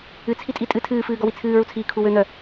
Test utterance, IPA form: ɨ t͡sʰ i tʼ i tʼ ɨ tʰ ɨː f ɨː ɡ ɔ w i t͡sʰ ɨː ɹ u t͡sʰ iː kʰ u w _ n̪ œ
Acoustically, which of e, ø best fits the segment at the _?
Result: ø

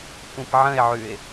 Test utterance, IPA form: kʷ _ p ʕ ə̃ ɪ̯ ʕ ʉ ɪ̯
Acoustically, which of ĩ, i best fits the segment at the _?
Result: ĩ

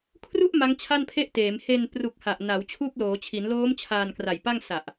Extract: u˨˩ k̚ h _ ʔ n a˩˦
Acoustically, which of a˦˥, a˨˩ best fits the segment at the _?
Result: a˨˩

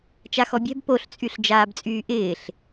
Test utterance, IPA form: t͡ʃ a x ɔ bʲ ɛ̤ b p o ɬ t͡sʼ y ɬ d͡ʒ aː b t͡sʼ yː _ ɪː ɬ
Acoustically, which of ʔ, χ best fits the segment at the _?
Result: ʔ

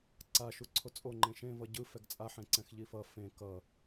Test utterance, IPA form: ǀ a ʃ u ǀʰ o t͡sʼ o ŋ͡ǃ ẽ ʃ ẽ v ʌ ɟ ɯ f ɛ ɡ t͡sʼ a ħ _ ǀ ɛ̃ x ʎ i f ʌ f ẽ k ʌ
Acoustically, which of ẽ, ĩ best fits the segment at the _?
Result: ẽ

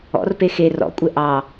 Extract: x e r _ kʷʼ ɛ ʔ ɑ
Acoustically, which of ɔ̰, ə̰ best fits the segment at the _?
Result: ɔ̰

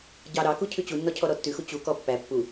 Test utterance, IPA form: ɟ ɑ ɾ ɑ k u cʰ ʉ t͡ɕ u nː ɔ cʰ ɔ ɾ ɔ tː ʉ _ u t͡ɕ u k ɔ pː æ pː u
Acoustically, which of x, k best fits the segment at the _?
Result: x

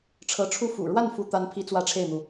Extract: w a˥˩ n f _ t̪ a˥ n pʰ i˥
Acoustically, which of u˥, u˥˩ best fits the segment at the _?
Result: u˥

